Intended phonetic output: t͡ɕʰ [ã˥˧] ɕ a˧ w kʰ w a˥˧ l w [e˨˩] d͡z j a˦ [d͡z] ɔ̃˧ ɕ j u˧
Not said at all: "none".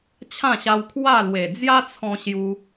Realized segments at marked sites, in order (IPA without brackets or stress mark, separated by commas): ã˥˧, e˨˩, t͡sʰ